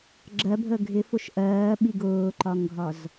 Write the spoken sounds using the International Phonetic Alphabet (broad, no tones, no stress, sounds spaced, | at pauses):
ɡ͡ǁ ɜ bʱ ə ɡʱ ɪ f ʊ ʃ ʔ ɜː ɓ i ɡ ʊː ǃ ɒ ŋ ɡʱ ɒ z